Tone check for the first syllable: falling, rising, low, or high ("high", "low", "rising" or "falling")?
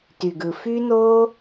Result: low